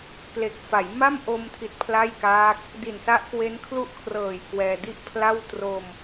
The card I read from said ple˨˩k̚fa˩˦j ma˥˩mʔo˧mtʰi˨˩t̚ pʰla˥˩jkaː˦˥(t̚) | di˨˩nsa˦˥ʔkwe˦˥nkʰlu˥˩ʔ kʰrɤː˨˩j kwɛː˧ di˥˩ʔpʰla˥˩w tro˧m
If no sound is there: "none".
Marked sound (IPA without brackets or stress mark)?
k̚